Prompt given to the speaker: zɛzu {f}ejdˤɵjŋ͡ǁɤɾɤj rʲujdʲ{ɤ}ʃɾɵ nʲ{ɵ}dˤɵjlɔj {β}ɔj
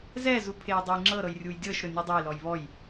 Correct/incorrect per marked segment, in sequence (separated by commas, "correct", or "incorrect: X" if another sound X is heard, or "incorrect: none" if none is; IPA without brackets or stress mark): incorrect: pʰ, correct, incorrect: ø, correct